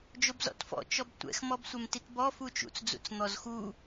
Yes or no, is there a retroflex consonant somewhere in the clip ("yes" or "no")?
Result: no